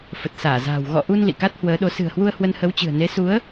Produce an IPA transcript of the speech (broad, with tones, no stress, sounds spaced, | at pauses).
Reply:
f ə˨˩ t̚ s aː˧˩ z a̤ː˨˩ w ɣ ɔ̰˧˨ ʔ u˧ n l ḭ˧˨ k a˦˥ t̚ h w əː˨˦ ɗ o˨˦ s ɨ̤˨˩ ə̯ h w u˧ ə̯ h w ə˧ n h ə˨˦ w t͡ɕ ɨ̤˨˩ ə̯ n e˨˦ s u˨˦ ə̯